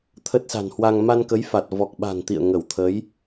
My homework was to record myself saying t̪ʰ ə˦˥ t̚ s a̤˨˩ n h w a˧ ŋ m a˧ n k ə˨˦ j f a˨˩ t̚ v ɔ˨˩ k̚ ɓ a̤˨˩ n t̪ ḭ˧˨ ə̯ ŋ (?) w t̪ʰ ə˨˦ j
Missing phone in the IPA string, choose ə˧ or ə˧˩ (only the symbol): ə˧˩